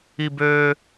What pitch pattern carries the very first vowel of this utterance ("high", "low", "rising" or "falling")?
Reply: high